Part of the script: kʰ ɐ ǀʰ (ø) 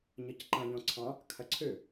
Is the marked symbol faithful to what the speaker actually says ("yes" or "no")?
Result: yes